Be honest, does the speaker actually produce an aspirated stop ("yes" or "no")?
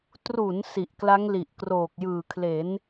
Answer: yes